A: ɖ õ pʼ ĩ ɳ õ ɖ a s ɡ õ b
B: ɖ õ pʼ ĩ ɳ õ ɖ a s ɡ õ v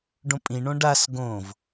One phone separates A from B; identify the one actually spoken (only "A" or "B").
B